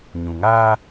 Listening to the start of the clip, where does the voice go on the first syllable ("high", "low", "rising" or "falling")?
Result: low